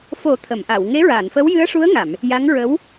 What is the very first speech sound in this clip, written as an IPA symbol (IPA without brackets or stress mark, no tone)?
f